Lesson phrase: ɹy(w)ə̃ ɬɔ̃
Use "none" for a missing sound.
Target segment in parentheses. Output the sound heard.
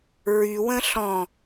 w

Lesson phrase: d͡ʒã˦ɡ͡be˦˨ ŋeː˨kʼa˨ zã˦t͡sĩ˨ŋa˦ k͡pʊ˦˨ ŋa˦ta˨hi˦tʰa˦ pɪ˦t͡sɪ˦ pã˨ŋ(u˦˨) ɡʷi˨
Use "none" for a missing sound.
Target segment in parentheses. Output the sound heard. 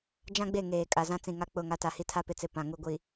u˦˨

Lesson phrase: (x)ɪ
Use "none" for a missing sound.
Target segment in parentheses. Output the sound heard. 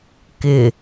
k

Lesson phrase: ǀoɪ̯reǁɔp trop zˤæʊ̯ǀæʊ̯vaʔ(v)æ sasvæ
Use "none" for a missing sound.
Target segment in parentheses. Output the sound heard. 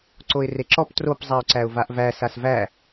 v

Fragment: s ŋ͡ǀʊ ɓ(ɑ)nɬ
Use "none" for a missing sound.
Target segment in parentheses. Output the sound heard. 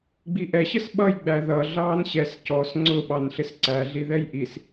ɑ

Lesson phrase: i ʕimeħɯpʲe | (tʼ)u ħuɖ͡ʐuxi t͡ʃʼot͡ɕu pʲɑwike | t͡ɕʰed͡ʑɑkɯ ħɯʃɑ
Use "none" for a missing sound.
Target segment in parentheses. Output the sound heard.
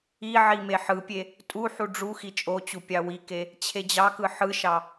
tʼ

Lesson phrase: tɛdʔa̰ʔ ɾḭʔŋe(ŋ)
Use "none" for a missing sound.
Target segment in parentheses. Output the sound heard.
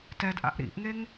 ŋ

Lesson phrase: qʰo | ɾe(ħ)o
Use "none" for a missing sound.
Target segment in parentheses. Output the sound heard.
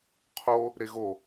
ɣ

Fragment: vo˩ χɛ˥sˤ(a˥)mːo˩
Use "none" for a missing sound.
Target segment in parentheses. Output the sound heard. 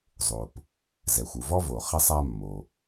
a˥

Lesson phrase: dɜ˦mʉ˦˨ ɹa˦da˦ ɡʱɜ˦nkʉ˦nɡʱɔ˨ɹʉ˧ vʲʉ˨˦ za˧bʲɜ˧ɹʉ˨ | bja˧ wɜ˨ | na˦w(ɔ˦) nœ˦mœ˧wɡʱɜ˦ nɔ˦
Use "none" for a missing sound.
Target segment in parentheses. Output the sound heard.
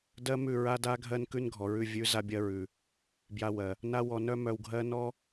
ɔ˧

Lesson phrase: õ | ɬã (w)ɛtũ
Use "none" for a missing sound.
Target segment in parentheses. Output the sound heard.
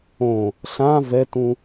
v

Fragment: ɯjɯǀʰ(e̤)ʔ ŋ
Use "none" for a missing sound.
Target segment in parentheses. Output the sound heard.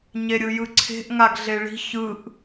e̤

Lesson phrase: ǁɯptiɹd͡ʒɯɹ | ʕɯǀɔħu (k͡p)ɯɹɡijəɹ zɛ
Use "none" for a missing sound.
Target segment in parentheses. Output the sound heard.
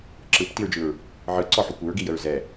kʷ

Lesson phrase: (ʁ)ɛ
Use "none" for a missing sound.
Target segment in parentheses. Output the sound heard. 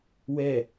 w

